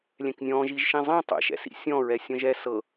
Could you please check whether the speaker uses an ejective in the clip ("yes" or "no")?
no